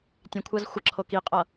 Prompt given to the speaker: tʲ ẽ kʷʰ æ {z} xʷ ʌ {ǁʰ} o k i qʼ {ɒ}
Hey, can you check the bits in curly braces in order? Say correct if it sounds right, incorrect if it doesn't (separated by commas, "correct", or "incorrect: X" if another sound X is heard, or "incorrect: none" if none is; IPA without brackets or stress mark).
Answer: correct, correct, incorrect: ʌ